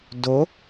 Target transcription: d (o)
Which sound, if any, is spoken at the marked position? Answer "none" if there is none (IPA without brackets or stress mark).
o